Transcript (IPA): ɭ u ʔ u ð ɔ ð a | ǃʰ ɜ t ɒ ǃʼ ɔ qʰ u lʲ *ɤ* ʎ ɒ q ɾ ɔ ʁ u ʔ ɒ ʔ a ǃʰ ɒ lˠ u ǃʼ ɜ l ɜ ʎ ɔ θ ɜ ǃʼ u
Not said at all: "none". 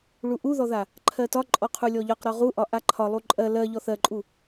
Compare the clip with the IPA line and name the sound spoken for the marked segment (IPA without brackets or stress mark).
ɔ